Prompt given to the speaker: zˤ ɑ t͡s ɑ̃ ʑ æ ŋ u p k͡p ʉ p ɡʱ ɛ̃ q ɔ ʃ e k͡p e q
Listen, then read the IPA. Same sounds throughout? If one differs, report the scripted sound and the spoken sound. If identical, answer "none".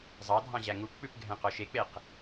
t͡s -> dʱ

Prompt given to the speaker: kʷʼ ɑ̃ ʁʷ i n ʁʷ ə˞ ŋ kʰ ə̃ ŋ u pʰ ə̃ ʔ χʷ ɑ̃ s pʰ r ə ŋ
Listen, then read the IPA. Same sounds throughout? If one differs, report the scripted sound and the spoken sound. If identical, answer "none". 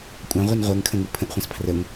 none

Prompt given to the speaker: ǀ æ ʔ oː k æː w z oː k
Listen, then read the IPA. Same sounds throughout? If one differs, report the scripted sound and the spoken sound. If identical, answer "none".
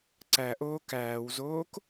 none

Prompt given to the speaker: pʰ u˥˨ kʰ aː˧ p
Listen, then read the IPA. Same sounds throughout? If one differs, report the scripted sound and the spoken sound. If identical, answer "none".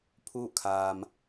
p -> m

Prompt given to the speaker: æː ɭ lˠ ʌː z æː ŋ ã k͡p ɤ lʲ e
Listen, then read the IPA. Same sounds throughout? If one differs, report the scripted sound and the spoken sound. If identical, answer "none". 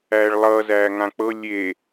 none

